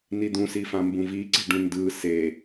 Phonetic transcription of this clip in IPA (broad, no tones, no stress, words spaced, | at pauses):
nid̪ũsifã mbũviǀe̤ ɖũndɯ se